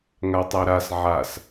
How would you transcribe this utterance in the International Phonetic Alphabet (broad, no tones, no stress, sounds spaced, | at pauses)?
ŋ a tˤ æ ɾ a s ʕ a s